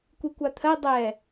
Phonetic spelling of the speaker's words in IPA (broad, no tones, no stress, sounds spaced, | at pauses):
kʷ i kʷ a t̪ʰ ɜ dˤ ɛ